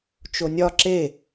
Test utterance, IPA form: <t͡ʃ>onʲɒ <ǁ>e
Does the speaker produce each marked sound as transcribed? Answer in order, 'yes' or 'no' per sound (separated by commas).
yes, yes